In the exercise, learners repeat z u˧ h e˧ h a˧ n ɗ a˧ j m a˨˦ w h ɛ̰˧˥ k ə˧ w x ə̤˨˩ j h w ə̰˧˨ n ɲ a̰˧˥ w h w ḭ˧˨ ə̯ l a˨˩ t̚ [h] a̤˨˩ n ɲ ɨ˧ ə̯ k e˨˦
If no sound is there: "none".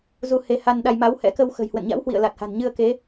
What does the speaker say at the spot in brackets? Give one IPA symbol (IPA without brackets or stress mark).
h